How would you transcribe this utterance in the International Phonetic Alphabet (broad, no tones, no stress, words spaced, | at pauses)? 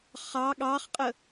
χɑ ɠɑχqʼə